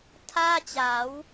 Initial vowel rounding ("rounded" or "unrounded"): unrounded